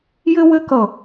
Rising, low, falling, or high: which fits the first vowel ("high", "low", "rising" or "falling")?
high